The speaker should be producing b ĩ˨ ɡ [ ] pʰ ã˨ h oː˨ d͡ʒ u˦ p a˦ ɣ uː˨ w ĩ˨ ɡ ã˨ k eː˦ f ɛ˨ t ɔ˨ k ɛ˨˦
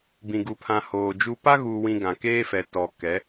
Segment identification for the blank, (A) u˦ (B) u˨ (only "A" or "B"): B